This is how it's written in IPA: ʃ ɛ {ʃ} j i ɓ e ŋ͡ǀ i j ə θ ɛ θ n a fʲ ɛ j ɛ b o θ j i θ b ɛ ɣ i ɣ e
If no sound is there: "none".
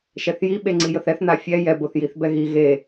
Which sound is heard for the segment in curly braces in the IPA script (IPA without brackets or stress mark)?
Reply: θ